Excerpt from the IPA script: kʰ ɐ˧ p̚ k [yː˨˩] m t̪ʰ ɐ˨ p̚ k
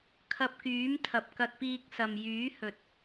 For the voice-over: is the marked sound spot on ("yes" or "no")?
no